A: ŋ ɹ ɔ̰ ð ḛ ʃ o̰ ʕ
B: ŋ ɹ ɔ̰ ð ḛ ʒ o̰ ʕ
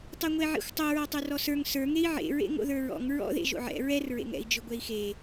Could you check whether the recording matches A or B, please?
B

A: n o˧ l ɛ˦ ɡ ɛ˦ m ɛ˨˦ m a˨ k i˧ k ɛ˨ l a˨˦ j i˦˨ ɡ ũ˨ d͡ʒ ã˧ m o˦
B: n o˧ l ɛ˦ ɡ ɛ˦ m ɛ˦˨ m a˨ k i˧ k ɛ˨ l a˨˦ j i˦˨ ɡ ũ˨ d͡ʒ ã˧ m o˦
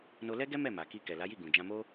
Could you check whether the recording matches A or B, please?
B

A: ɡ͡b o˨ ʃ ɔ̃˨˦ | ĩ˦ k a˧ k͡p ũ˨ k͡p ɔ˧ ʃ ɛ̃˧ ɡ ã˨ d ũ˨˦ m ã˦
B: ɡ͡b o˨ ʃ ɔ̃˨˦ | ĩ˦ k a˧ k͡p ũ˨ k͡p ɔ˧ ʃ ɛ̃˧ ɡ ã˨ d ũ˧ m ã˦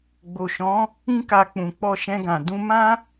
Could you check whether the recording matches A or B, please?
B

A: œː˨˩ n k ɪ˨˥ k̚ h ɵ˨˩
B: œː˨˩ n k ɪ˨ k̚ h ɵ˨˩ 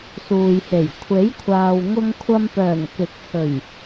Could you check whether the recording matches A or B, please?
A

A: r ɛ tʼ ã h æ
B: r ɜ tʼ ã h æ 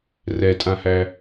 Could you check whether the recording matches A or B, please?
A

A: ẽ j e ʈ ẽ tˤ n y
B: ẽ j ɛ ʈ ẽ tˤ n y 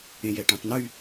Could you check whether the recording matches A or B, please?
B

